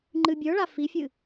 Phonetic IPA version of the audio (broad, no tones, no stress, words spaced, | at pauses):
ŋ͡ǃɨbʲə˞ɭa fifʲɨ